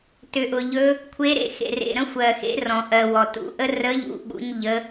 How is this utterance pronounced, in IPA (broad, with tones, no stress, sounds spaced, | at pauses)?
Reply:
t ʏ˨ ʔ ʊ˨ ʎ ɵ˧˥ | kʷʰ e˧˥ ɾ ḛ˨ x ḛ˨ r ḛ˨ ɾ ə̃˧˥ xʷ ɜ˨ x ḛ˧˥ r ɔ̃˨ ʔ ɜ˨ w ɔ˨ t ṵ˧˥ ʔ ə˧˥ r ə˧˥ ʎ ṵ˨ ɓ ṵ˧˥ ɲ ʎ ə˧˥